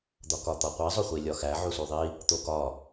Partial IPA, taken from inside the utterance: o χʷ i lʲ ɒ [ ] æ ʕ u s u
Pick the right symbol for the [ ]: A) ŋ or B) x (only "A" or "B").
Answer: B